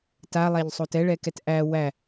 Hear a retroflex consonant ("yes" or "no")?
yes